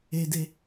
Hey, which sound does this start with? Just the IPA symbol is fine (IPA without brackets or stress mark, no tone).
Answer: e